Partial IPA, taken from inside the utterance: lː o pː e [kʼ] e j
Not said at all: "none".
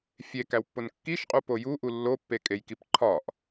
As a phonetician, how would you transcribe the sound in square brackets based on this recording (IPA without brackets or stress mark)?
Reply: kʼ